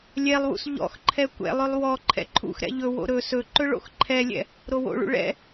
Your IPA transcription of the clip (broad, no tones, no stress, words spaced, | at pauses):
lʲɛlˠwṵs ʎɔ̰xǃʰɛ kʷɛ̰lˠølˠ wɔ ǃʰɛ̰ǃʰṵxɾɛ̰ ʎɵwo̰ ɾɵ sɵǃɵ ɭo̰xǃʰɛlʲɛ̰ | ɾowo̰ɭṵ ɭɛ̰